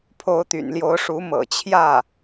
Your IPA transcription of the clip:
pʰ o˧˥ ʊ̯ t̪ y̰˨˩ n l j o˧˥ ʊ̯ ʂ u˧˥ m ɤ̰˨˩ t͡ɕʰ j ä˥˩

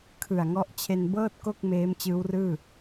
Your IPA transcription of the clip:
kʰ ɯ˨˩ a̯ ŋ ɔ˦˥ ʔ t͡ɕʰ e˧ n b ɤː˥˩ t̚ k o˥˩ k̚ m eː˦˥ m t͡ɕ ɯː˦˥ w r ɯː˥˩

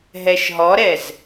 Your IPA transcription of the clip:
ɦ ɛ ʃ ɦ ɔ ɾ ɛ z

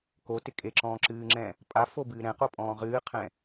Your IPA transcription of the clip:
k o t ɪ kʼ e ǁ ɔ̃ː ǁ ɨː ŋ͡ǁ ɛ̃ | pʼ a f o b ɨː ɾ ɛ̃ q o pʼ ɔ̃ː ʁ ɨː qʰ ɛ̃

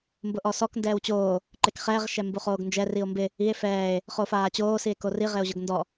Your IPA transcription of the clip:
m b ʊ ʔ ɔ s ɔ k n d ɛː w t͡ɕ oː | ǃ e k χ ɛː ʁ ʃ ɛ m b u χ oː ɡ n d͡ʒ ɛ r i o̯ m b ɪ | i e̯ f ɛː e̯ | χ oː f aː t͡ɕ oː s i e̯ k o r i ʁ e o̯ ʑ ʊ ɡ n d ɔ

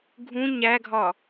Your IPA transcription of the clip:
ɡʱ ũ ɲ æ ɡʱ ɒ

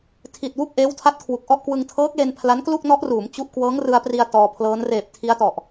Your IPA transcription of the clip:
tʰ i˨˩ t̚ w u˥˩ k̚ ʔ eː˦˥ w tʰ a˦˥ t̚ kʰ w u˨˩ k̚ ʔ ɔ˥˩ ʔ k w ɯ˧ ŋ tʰ ɤː˦˥ k̚ l e˧ n pʰ l a˦˥ n k l u˥˩ k̚ n ɔ˦˥ ʔ r uː˩˦ m t͡ɕ u˦˥ ʔ k w ɤː˦˥ ŋ r ɯ˧ a̯ p r i˧ a̯ t ɔː˧ pʰ l ɤː˦˥ n r eː˨˩ p̚ tʰ i˦˥ a̯ t ɔ˨˩ ʔ

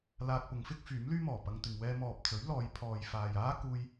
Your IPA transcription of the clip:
l aː˧ k̚ p ʊ˨˧ ŋ f ɪ˥ k̚ f yː˨˥ m l yː˥ m ɔː˨˩ p ɐ˧ ŋ t̪ ɪ˨ ŋ w ɛː˧ m ɔː˨ p̚ t͡s ɵ˨˥ ɥ l ɔː˨˧ j pʰ ɔː˨ j f aː˨ j aː˥ k uː˧ j

